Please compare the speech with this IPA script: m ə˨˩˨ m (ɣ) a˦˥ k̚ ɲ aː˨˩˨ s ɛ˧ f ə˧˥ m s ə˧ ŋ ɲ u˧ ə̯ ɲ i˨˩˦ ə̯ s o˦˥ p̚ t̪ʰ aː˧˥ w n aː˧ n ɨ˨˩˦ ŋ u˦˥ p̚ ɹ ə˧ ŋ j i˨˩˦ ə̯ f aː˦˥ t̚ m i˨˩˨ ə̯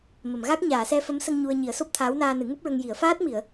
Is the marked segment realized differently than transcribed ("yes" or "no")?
no